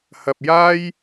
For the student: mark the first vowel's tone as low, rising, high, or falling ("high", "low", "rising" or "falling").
low